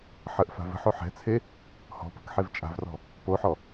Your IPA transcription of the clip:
ħ ə ʔ f a̤ v ə̤ ħ o ħ ɛ̤ t͡sʰ e | h ɔ̤ p ə̤ k ħ e v t͡ʃʼ a̤ v r ɔ̤ | p o ħ ɔ

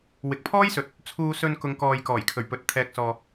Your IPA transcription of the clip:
w ɪ˨ k̚ pʰ ɔː˥ j s ɵ˨ t̚ | t͡sʰ uː˧ s ɵ˧ n k ʊ˨˧ ŋ k ɔː˨ j k ɔː˨˩ j kʰ ɵ˨˩ ɥ p ɵ˨ t̚ t̪ʰ ɛː˧ k̚ s ɔː˧

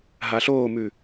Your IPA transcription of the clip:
ɦ a ɬ oː m ʉ

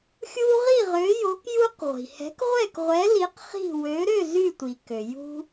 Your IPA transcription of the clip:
xʲ u˦ ʁ i˥˨ ʁ ø˨˥ j o˨˥ k j u˦ q ʁʷ i̤˩ h ɛ̤˨˥ k ʁʷ ɛ˥˨ k ʁʷ ɛ˨˥ l i˨˥ q χ i̤˥˨ w ø˨˥ ɾ ø˥˨ z y˥˨ tʷ i˩ k ø˩ j ṳ˦

